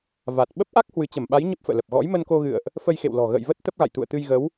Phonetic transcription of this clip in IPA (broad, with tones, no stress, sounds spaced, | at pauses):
v a˨˩ t̚ ɓ ə˦˥ p̚ ʔ a˦˥ k̚ h w ɨ˨˦ t͡ɕ ə˧˩ m ɓ a˨˦ j ɲ ə˦˥ p̚ f ə̰ː˧˨ l ə˨˩ p̚ ɣ ɔ̰˧˥ j m ə˧ n k o˧ ɣ ɨ̰˧˨ ə̯ ʔ | f ə˧ j x ḛ˧˨ w l ɔ̤˨˩ ɣ ə̰ː˧˨ j v ə˦˥ t̚ t̪ ə˦˥ p̚ ɣ a̰˧˨ j t̪ ṵ˧˨ ə̯ t̪ ɨ˧ j ɣ ə˨˦ w